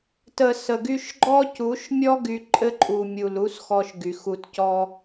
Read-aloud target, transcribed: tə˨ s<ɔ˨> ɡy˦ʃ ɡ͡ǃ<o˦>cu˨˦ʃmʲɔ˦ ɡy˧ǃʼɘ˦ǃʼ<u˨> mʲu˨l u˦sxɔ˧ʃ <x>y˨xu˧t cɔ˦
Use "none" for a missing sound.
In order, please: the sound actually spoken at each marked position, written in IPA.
ə˨, ɔ˦, u˨, ɡ

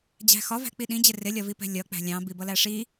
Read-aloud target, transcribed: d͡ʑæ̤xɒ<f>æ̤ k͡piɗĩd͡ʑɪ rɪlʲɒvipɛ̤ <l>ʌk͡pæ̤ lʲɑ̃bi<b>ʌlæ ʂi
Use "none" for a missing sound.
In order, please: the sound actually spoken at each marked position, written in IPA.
v, lʲ, b

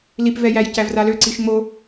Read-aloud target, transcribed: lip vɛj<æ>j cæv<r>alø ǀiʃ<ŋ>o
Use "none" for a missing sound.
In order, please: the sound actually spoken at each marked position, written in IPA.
æ, r, ŋ͡m

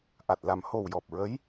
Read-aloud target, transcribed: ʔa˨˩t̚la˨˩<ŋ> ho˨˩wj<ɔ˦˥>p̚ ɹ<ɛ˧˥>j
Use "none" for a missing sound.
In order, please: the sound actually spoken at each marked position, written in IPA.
m, ɔ˨˩, ə˧˥

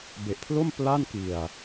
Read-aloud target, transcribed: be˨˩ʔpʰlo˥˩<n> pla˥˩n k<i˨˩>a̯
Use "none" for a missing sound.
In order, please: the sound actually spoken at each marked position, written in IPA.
m, i˨˩

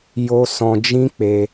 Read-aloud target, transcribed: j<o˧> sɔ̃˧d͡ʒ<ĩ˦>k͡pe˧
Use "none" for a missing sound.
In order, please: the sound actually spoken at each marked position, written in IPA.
o˧, ĩ˦

